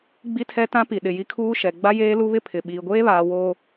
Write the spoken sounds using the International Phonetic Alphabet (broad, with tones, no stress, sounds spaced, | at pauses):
ɡ͡b i˦ tʰ ɛ˦ t ã˦ p i˨ ɗ ɪ˨ j i˦ kʰ uː˦ ʃ ɛ˨ ɡ͡b a˦ j eː˦ l u˦ β ɪ˦ pʰ ɪ˨ ɓ iː˨ ɡʷ eː˦ β aː˨ w oː˨